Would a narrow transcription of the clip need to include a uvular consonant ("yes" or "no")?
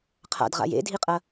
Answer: yes